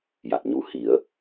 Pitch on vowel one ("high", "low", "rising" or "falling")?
low